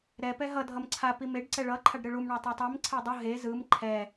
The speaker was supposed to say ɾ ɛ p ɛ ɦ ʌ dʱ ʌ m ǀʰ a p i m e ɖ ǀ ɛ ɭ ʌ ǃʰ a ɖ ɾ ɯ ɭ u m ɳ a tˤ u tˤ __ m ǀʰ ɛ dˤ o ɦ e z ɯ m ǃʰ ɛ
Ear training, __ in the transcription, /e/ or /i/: i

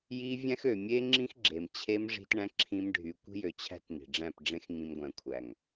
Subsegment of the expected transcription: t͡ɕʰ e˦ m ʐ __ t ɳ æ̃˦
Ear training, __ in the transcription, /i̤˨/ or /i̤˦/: i̤˦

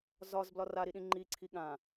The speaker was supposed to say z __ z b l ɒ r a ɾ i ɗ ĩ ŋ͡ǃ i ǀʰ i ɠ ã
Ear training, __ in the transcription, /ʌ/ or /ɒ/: ɒ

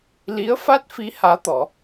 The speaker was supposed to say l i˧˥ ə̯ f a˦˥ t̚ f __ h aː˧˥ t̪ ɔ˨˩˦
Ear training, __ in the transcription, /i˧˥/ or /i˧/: i˧˥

